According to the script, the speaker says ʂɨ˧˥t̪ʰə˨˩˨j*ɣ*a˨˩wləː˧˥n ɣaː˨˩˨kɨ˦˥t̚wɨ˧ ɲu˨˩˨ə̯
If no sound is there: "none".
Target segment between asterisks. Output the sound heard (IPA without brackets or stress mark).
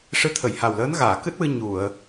h